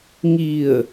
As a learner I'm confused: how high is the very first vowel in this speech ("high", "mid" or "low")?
high